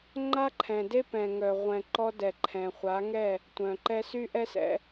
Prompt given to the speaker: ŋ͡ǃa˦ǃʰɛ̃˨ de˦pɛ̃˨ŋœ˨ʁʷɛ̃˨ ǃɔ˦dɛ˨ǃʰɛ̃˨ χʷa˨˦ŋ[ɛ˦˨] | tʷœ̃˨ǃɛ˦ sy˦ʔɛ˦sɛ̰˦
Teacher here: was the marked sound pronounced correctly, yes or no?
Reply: yes